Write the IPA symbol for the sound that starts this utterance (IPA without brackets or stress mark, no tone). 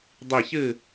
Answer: dˤ